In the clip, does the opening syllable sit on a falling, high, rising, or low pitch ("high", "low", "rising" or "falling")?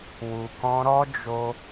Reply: low